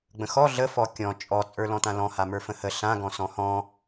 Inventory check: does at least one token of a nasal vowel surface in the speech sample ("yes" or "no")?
yes